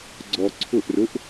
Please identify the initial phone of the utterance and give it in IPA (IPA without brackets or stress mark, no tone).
ɡ͡ǀ